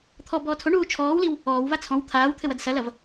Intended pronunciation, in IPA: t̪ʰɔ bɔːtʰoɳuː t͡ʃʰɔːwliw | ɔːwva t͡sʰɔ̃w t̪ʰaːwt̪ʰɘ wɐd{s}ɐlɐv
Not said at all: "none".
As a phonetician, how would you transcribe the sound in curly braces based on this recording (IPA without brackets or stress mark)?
s